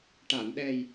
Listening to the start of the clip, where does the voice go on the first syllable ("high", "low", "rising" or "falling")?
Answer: low